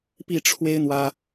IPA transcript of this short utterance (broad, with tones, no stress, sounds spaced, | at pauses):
p i˥˩ ʈ͡ʂʰ w e˥ ɪ̯ n̪ w ä˥